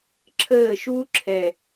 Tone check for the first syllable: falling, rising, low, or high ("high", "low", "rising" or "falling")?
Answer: falling